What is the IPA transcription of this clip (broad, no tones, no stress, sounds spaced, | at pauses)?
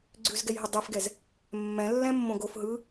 ɡ͡ǀ ʉ z ɡ ɛ j ɦ ɯ dˤ ʉ f ɡ ɛ z | mː ɛ̃ lː ɛ̃ mː õ ɡ o f ɦ ɯ